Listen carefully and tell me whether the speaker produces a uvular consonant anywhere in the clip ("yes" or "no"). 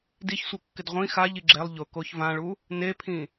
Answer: yes